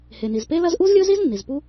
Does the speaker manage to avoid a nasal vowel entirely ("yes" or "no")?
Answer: yes